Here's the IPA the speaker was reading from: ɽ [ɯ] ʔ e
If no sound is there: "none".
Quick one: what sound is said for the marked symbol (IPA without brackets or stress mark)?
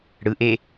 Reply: ɯ